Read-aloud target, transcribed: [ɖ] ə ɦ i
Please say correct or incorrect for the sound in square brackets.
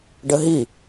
correct